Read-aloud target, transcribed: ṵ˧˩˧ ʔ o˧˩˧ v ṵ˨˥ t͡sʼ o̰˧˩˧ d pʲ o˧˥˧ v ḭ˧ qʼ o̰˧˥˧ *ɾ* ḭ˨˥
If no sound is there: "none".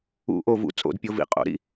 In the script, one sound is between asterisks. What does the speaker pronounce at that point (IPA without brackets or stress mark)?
ɾ